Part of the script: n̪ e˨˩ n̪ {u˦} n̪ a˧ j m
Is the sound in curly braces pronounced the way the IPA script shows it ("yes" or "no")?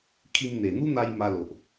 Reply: yes